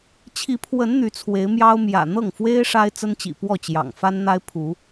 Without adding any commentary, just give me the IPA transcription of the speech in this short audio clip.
t͡ɕʰi˨˦pʰwə˨˦n n̪y˨˦t͡sʰwe˨˦ɪ̯mjɑ˦ʊ̯ mjä̰˨˩ n̪ɤ˥˨ŋfwe˦ɪ̯ ʂa˦ɪ̯t͡sə˦nt͡ɕḭ˨˩pwɔ˥˨ t͡ɕjɑ̰˨˩ŋfa˦nn̪a˦ɪ̯pʰu˨˦

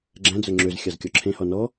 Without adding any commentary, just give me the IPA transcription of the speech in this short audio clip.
ɡ͡ǁæ̃d͡zœ ŋ͡ǁøzxʲɑzkʲɔ ǁʰẽhɔ nɔ

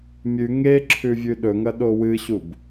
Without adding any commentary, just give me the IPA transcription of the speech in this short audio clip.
mʲʉ ŋeǁʰʉ vʲʉɗɵŋɐ ɗowɨɕub

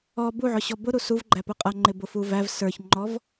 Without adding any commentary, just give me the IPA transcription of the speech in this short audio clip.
ɔ buʕʊɕɔ bʊɾu suvɡ͡ǃæpʊ qʼʌŋ͡ǃɪbʊfu væv sə˞çŋ͡ǃɔv

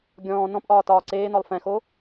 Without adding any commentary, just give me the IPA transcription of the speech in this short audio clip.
ɡʲɔ̃ː nɔ̃pʔɒː tɒːǀeːnɔlˠ fɛ̃xo

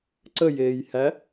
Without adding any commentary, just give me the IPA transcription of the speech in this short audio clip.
ǀəjeːjhæ

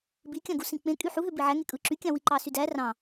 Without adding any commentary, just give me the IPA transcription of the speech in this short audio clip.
bikʲɑ̃ɡusĩ k͡pẽkʼy ħuɦø biʕæŋe kʼɯǁykʲɑ̃ wiǃɑsydæ rɑ̃

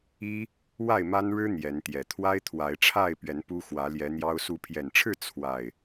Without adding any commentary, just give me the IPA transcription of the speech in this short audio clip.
i˦ | wa˥˨ɪ̯ma˦nɻɻ̩˦ n̪jɛ˨˦n t̪jɛ˨˩ t̪ʰwa˦ɪ̯t̪ʰwa˨˦ɪ̯ʈ͡ʂʰa˥˨ɪ̯pɥɛ˨˦n pu˦xwä˨˦ljɛ˨˦ n̪jɑ˦ʊ̯ su˨˦pʰjɛ˨˩nʈ͡ʂʰɻ̩˥˨ t͡sʰwa˨˩ɪ̯

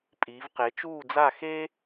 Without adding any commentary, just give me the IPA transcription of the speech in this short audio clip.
pʼiː˩˥vqe˩˥ t͡ʃuː˥˩d͡za˥˩xeː˥

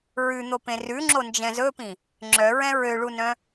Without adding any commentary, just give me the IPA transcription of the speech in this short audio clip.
ɹʉn̪opẽ rʉŋ͡ǁond͡ʒɛ̃ zɵpĩ | ŋ͡ǁœɹɛ̃ ɹøɭunœ̃

